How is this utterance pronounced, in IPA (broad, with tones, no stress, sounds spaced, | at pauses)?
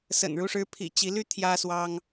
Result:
s ə̰˨˩ n ɻ u˥˩ ʂ ɻ̩˥ pʰ ḭ˨˩ t͡ɕ i˧˥ l y˥ t̪ʰ j ä˥ s w ɑ˥ ŋ